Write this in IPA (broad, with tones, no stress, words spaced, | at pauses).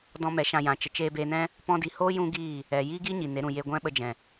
dɔ̃˧ mɛ˨˦ʃã˧jã˨ t͡ʃə˨t͡ʃeː˧beː˧nɛ̃˦ | pɔ̃˧di˨hoː˦ jũ˦ɡiː˦˨ | ɛ˨ ji˦ɡi˦ ɲi˨ne˨˦ɾũ˨ je˧ɡʷɛ̃˦ɓə˧d͡ʒɛ̃˨